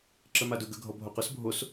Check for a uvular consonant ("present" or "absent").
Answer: present